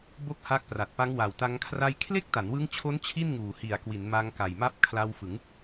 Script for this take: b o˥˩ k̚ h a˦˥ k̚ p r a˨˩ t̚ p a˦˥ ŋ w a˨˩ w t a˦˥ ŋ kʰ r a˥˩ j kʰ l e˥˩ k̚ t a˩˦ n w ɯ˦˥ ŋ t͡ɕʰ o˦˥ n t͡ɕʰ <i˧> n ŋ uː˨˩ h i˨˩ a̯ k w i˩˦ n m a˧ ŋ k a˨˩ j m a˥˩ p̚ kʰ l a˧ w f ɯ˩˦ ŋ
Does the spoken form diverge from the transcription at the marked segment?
yes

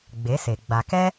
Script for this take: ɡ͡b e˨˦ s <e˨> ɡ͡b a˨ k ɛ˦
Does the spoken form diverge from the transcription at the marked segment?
no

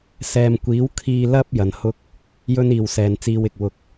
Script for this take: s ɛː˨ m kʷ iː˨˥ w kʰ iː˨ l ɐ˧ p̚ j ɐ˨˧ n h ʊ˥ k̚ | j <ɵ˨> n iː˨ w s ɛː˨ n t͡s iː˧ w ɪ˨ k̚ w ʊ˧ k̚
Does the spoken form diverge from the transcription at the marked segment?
yes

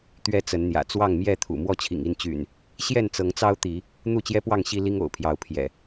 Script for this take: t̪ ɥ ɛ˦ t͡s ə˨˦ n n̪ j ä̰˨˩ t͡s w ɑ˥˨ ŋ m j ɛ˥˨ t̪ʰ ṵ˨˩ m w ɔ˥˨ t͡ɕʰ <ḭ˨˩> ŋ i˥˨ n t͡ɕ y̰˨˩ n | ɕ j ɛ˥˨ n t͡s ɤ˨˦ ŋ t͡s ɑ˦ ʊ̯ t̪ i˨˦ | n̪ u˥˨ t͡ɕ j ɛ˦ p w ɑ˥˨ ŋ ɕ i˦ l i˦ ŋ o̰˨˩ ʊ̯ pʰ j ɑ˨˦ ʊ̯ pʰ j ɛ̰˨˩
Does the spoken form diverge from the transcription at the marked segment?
no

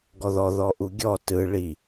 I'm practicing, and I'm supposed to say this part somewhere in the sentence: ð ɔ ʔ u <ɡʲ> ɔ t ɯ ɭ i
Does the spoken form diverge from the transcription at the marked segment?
no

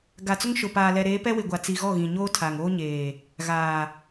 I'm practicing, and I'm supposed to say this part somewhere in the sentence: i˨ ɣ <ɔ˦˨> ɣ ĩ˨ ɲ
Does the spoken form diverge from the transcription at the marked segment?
no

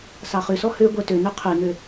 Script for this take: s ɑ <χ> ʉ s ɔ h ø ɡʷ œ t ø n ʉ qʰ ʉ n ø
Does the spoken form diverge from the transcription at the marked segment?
no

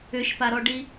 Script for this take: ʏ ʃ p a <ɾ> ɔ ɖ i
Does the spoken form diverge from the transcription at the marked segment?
no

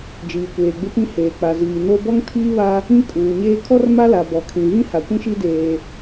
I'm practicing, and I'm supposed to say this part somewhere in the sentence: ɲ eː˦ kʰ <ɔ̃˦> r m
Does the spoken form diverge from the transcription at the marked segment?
yes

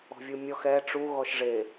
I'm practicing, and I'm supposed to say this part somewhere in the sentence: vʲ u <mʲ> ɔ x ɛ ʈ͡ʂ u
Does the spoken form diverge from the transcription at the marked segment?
no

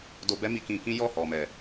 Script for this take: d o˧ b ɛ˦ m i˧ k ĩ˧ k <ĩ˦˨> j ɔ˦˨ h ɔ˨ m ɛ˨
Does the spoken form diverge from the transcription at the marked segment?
yes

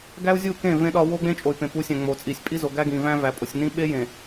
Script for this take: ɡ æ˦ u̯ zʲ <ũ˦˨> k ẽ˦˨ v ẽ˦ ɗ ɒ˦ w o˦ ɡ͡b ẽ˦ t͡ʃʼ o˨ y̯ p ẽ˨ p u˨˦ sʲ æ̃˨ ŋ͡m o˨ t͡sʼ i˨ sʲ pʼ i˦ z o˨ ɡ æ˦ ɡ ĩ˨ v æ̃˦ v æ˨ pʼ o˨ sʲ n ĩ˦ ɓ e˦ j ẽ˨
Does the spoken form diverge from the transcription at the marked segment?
yes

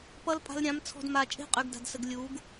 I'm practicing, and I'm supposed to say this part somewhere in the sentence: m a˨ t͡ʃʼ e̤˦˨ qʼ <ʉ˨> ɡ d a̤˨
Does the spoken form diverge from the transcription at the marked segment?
no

